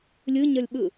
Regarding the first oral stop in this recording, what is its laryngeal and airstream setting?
implosive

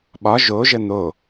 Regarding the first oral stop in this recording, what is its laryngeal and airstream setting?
implosive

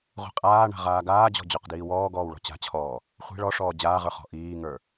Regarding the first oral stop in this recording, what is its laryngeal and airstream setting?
ejective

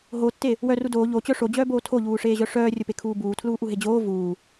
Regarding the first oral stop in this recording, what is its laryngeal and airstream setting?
plain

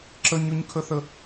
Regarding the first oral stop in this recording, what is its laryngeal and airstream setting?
click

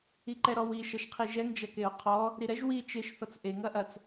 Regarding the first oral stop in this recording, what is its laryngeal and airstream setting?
click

